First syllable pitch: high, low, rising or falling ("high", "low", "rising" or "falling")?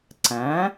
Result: rising